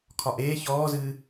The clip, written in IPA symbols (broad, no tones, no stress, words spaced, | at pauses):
kʰɒʔeː çɔːzɨː